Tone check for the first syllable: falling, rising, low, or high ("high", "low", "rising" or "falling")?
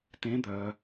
rising